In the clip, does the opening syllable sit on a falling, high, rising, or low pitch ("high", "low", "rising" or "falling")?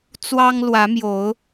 high